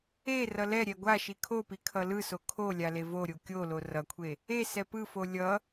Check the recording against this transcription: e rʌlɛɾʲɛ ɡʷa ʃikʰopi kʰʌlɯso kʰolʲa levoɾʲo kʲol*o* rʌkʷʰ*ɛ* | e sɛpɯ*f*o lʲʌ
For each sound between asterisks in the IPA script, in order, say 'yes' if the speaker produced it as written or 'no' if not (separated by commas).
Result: yes, no, yes